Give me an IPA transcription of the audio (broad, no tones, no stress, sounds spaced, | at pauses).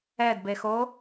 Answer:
ɛ d b e x o